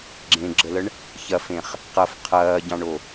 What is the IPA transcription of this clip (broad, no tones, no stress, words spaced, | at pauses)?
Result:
ɡ͡ǁẽɡ͡ǁələɳ | çɐfẽχ | qɐf qʰɐːɟɑ̃ɳo